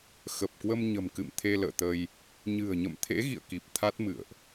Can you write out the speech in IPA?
xə˨˩p̚kwə˧m ɲə̤˨˩mkɨ̰˧˨m t̪ʰe˧lə̰ː˧˨t̪ə˧j | ɲɨ̤˨˩ə̯ɲə̰˧˨mt̪ʰḛ˧˥ ɣḭ˧˨ə̯ki˨˩p̚ t̪ʰa˦˥t̚mɨ̰˧˨ə̯ʔ

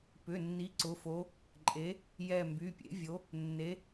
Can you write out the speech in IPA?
pʏ˩˧˩nːi˨˥ ǀʊ˩˧˩fo˨˥ | ǃʼe˨˥ | jɛ˦˨ mby˩˧˩pʲḛ˨˥vʲo˨˥ | nːe˨˥

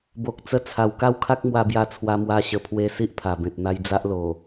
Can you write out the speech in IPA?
bo˨k̚t͡sə˧t͡sʰa˨˩w ka˦wkʰa˦k̚mwa˧bja˧ t͡sʰwa˧mwa˧ ɕə˨˩pʰwe˧ si˦ʔpʰa˨˩bẽ˨t̚ n̪a˧jd͡za˦ʔ lo˨˩

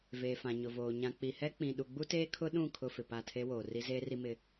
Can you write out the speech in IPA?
veː˨fã˨ɲʊ˨voː˨ ɲã˨k͡pi˨hɛ˦k͡pĩ˨ ɗu˨ɡ͡bu˦teː˦ kʰʊ˦ɗũ˦˨ kʰʊ˦fɪ˨pa˦˨ tʰe˦woː˨ ri˦zeː˦ri˦ mɪ˦

